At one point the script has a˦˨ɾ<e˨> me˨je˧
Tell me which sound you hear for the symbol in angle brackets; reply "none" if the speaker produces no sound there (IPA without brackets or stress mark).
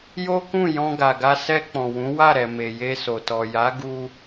ɛ˨